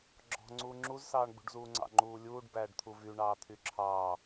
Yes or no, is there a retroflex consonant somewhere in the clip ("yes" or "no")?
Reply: yes